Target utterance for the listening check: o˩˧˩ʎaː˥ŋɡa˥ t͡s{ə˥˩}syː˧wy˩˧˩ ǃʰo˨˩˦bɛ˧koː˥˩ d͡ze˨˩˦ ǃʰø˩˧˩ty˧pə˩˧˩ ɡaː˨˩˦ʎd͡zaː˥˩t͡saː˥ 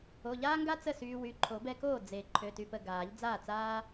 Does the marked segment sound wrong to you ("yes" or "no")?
no